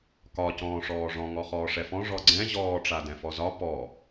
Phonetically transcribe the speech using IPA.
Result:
k ɒ c ɔ̃ː ʂ ɔː ʐ ɔ̃ ŋ ɔ χ ɔː ʂ ɛ f ɔ̃ ʐ ɔ ɡ͡ǀ ɛ̃ ʑ ɔː ʈ͡ʂ a d ɛ̃ f ɔ z ɒ p ɔ

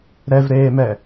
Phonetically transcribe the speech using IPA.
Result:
ɾ ɛ v ɾ eː m ɛ

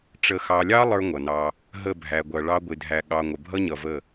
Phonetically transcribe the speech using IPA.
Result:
ʈ͡ʂ ə˨ x ɑ˨ lʲ ɑ˦ lˠ ə˞˦ ŋʷ ʌ˨ n ɑ˦ | ɦ ə˦˨ bʱ æ˨ ɡʷ ʌ˨ ɭ ɑ˦ ɡʷ ɪ˨ dʱ æ˨ ɠ ɑ˨ ŋʷ ə˨ bʱ ʌ˦ ɲ ʌ˨ v ə˦˨

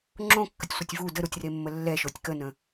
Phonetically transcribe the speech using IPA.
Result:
ŋ͡ǁ õ kː ə tʲ sʷ ə tʲ v u d ə ɾ u tʲ r e mː ə lː ɛ ʃ o tʲ k ə n ə̃

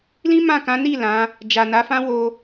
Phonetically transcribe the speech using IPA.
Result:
l ĩ˦ m ã˦˨ k ã˨˦ n i˦˨ l ã˨˦ | d͡ʒ a˨ n a˨˦ f ã˦ w o˧

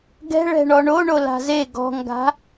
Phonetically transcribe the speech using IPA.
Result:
ɡ ɛ̤ ɭ ɛ̤ ɳ ɔ ɳ o ɳ o l a̤ z e ɡ ɔ̤ ŋ ɡ a̤

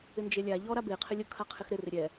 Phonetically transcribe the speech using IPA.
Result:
ɪ n d͡ʒ e lʲ a ʎ ɔ ɾ a b e qʰ ɪ lʲ ʊ kʰ a qʰ ɪ x ɾ ɪ r ɪ ɾʲ ɛ

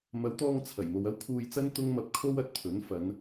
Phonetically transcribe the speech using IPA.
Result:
m ɐ˨˧ w t̪ ɔː˧ ŋ t͡sʰ ɐ˨˩ j m o˨ w ɐ˥ w kʰ uː˧ j t͡s ɐ˥ n t̪ ʊ˥ ŋ m ɐ˧ p̚ kʰ o˥ w ɐ˨ t̚ t̪ʰ ɵ˨˥ n f ɐ˨˧ n

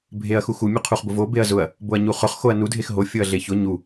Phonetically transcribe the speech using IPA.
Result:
bʱ e ɐ̯ x u x u mʲ u qʰ u χ b ʊ v o b e ɐ̯ z ʊ ɐ̯ | b o ɐ̯ ɲ u χ ʊ χ x o ɐ̯ n u dʱ e x ɦ o fʲ ʊ ɐ̯ ɮ e ç ʊ ɲ u

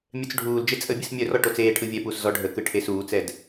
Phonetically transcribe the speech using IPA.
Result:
mʲ œ t͡s ɖʱ uː l d͡ʒ e t͡sʼ ə bʲ ɯ s mʲ œ r ɔ ʈ o t͡s eː ʈʰ ɯ vʲ ɛ p uː s z ɔ ɖʱ ə k ɯ ʈʰ e s uː t͡s ɛ d

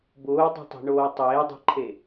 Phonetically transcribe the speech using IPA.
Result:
b ʊː dˤ o̤ tˤ e̤ ɳ oː tˤ eː dˤ e̤ ǃʰ e

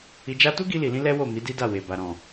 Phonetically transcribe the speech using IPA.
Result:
i˧ d͡ʒ a˦ t u˦ ɡ i˧ l i˨ l ĩ˧ l ɛ˦ w o˦˨ m i˨˦ d i˦ d a˦˨ w e˨ b a˨ ɾ ɔ̃˨

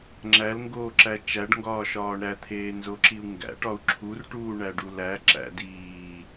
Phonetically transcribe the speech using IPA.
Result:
ŋ͡ǁ æ l ŋ ɡ oː ǁ æ t͡ʃ æ ɖ ŋ ɡ ɒː ʃ ɒː ɳ ɾ æ t̪ʰ eː n z o ǁ i u̯ ŋ ɡ æ̰ ʈ ɒ u̯ ǁʰ u r ʈ uː ɳ æ ɖ u l æ ǁ æ̰ d iː

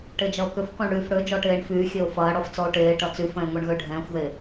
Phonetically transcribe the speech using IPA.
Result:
ʈ e d͡ʒ ɐ o̯ k ʏ f k ɔ̃ ɳ ɽ yː f ɽ ø d͡ʒ ɔ ʈ eː ɳ f yː xʲ e o̯ f ɐː ɽ ɔ f t͡s ɔ o̯ ʈ eː ʈ ɐ t͡s y f ɛ̃ e̯ ŋʷ ɛ ɳ ɣ ø ɖʱ ɛ̃ː xʷ ð e

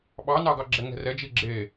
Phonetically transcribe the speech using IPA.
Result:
ɓ ɑ n ɑ ɡ ɑ ɡ͡ǁ ɛ ŋ ɛ̤ r ɛ d͡ʒ i ɡ͡ǁ e

